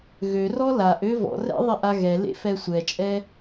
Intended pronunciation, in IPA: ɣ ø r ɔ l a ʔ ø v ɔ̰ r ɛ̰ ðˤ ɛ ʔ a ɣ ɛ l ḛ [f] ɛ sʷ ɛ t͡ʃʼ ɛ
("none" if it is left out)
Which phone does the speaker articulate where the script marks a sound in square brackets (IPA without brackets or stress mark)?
f